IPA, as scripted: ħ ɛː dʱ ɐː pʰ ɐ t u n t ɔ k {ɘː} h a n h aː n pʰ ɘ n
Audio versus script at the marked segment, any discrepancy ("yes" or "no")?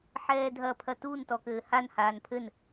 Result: no